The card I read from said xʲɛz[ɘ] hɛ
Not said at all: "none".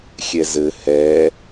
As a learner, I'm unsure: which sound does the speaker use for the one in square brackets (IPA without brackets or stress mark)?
ɘ